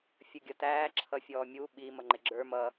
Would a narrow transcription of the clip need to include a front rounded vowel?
no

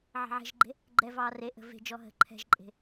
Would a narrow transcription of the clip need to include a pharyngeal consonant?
yes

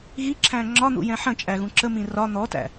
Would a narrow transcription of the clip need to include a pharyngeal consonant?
yes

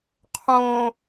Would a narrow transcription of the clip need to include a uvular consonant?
yes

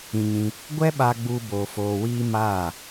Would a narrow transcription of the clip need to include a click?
no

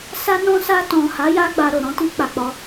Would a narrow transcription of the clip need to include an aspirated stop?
no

